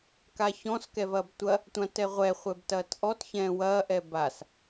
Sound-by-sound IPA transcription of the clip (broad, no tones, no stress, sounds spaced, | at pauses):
k a ç ɔ̃ s k ɛ v ɐː b tʷ ɐ | tʷ ã t ɛ ʁʷ ɛ χʷ ɛ b t ɐː t ʔ ɔ t ç ɛ̃ː w ɐː ʔ ɛ b a s